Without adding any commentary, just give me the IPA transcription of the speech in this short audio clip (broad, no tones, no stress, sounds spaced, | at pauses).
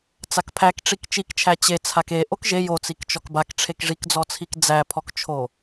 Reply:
t͡s a k pʰ æ k ʈ͡ʂ i k t͡ʃ i k t͡ʃʰ æ t͡ɕ e t͡sʰ a k e ʔ o k ʒ e j o t͡s i k t͡ʃ ɔ k b a k ʈ͡ʂʰ e k ʐ i k d͡z ɔ t͡sʰ i k d͡z æ pʰ ɔ k t͡ʃʰ o